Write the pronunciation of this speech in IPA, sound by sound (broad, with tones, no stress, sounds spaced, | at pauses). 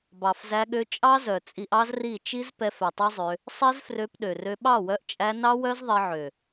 b ɑ˨ f z æ˧ ɠ ø˧ t͡ʃʼ ɑ˦ z œ˨ t͡sʼ i˧ ʔ ɑ˦ z r i˦˨ t͡ʃ i˦ z p ɛ˧ f œ˨ tˤ ɛ˦ zˤ ø˧ | sˤ ɛ˦ z f r ø˧ p ɗ ø˨ r ø˧ ɓ ɑ˦˨ w œ˧ ʔ t͡ʃʼ æ˧ n ɑ˦ w œ˦ z ðˤ i˧ ʕ ø˨